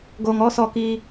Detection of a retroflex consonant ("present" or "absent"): absent